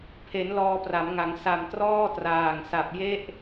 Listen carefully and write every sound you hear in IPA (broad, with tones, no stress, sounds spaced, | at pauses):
pʰ e˩˦ n l ɔː˧ p r a˩˦ m ŋ a˩˦ ŋ s a˨˩ m t r ɔː˥˩ t r aː˨˩ ŋ s a˨˩ p̚ j e˦˥ ʔ